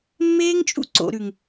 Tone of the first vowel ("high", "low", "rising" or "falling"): high